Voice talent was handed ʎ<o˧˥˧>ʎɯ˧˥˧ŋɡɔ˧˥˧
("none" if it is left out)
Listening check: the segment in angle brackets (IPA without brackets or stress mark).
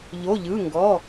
o˧˥˧